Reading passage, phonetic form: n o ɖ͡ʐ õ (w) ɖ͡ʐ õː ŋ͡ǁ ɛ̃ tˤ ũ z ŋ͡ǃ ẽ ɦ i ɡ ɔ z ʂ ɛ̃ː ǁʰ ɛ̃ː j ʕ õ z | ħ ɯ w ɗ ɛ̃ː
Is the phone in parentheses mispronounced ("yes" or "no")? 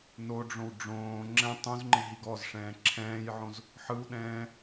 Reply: no